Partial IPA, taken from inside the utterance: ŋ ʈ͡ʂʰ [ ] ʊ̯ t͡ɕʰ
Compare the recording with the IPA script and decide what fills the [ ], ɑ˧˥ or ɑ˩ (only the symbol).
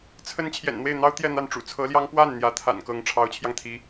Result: ɑ˧˥